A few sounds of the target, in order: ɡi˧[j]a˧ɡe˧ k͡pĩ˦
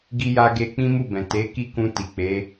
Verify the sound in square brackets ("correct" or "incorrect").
correct